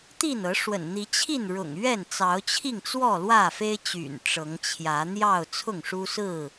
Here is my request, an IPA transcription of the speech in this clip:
t̪ i˥˨ n ɤ˨˦ ʂ w ə̰˨˩ n n̪ i˨˦ t͡ɕʰ i˥˨ n ɻ ʊ̰˨˩ ŋ ɥ ɛ˥˨ n t͡s ɑ˨˦ ʊ̯ t͡ɕʰ i˥˨ ŋ t͡s w ɔ˥˨ l w ä˥˨ f e˦ ɪ̯ t͡ɕ y̰˨˩ n ʈ͡ʂ ɤ˨˦ ŋ t͡ɕʰ j ä˨˦ n̪ j ɑ˥˨ ʊ̯ t͡sʰ ʊ˥˨ ŋ ʂ u˦ s ɹ̩˥˨

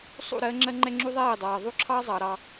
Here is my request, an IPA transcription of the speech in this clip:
sˤ ṵ˦˨ ɾ ɜː˦ ŋ͡ǁ ɜ˦ ŋ͡ǃ ɛ˦ ŋ͡ǁ u˦ ðˤ ɛː˦˨ e̯ dˤ ɑː˨ ðˤ u˦ ǁʰ ɑː˦ zˤ ɑ˨ ɾ ɑ˦

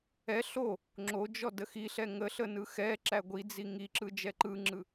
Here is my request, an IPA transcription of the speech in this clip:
ɛ ɬ o | ŋ͡ǁ o d͡ʒ ɔ d ə x i ɬ ɛ ŋ ə ɬ ə n ɯ x ɛ ǁ æ ɡʷ i d͡z i ŋ i ǁ ɯ d͡ʒ ɛ ǃ ɯ ŋ͡ǁ ɯ

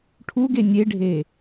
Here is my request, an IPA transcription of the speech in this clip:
ʈʰ u ɡ e nʲ e ɖʱ eː

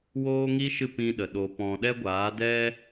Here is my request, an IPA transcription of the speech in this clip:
w oː˦ ŋ i˦ ʃ ɨ˦˨ p ĩ˧ ɗ ə˨ ɗ o˧ p ɔ̃˧ ɗ ɛ˦ ɡʷ aː˨˦ d ɛ˦

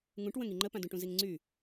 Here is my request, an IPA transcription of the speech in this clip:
ŋ ũ ʈ w ə̃ ŋ i ŋ͡ǃ ə p ã d ũ ʈ ũ z i ŋ ŋ͡ǀ y

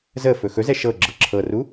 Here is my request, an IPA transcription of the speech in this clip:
z ə f ɵ x ɵ z ɛ ʃ ɤ ɡ͡ǁ ɤ ǁʰ ɤ r u

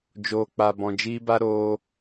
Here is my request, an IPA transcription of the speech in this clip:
d͡ʒ oː˨ k͡p a˨ b ɔ̃˨ d͡ʒ iː˦ b a˦ ɾ oː˧

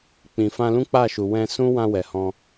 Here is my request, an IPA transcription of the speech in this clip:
k͡p ĩ˨ f ã˧ l ũ˦ k͡p a˦˨ ʃ u˨ w ɛ̃˧ s ũ˦ w ã˧ w ɛ˨ h ɔ̃˧

